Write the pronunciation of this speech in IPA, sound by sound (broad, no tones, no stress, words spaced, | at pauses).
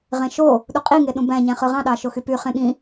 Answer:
ʁẽʃo | ɗuqʼi ŋeɗũbæ̃ ɲæ̃χɯʁɑ̃ ɗɑʃoxypy χẽɠĩ